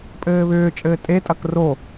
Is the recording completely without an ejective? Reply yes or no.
no